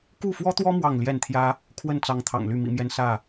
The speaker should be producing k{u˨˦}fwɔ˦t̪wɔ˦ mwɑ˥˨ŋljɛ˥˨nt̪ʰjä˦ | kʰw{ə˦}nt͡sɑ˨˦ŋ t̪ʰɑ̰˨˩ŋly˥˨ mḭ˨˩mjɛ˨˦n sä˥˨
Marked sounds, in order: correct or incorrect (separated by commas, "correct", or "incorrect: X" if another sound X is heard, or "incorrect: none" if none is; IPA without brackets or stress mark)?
incorrect: u˥˨, incorrect: ə˥˨